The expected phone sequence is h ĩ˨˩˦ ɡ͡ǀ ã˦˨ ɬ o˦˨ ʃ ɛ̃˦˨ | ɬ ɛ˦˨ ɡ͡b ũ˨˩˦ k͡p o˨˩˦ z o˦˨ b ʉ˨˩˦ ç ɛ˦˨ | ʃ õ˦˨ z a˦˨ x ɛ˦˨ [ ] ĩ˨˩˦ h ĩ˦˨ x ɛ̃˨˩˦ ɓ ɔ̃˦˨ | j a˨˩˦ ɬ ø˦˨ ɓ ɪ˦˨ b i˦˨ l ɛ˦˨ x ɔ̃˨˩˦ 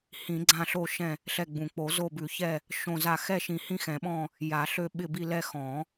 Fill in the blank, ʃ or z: ʃ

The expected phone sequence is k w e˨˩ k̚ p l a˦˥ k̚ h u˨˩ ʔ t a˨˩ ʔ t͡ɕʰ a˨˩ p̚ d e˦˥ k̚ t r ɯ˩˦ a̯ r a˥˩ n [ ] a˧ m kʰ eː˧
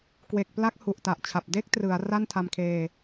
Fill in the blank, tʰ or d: tʰ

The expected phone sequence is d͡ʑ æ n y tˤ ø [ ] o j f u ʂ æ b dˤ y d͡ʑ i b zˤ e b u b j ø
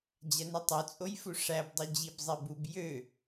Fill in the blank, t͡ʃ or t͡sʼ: t͡sʼ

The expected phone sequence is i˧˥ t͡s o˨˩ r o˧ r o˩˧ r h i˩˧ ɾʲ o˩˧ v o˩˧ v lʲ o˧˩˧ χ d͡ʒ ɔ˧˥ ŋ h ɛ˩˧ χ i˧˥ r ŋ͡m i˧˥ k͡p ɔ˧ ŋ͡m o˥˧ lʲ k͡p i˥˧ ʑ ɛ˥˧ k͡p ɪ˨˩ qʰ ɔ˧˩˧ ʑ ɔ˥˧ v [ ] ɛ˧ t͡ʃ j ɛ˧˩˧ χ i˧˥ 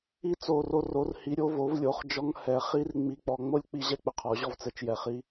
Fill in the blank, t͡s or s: t͡s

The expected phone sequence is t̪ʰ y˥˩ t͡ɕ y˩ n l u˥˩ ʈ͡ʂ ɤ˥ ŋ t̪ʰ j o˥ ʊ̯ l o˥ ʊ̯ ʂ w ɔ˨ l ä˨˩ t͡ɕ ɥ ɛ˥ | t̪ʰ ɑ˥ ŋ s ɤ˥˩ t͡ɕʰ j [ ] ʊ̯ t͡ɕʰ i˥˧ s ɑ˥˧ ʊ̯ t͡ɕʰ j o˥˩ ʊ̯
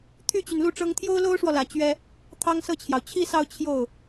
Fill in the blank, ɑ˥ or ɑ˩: ɑ˩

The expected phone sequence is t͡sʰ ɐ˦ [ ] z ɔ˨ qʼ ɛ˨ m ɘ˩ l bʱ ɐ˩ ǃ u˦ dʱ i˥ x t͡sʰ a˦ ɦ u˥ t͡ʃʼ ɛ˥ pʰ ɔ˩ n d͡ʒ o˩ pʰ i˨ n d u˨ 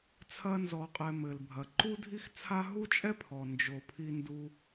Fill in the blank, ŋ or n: n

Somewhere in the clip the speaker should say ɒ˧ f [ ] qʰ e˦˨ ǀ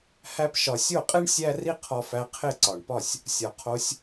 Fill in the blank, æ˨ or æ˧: æ˧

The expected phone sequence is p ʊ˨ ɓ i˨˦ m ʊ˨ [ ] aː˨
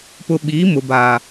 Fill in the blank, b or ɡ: b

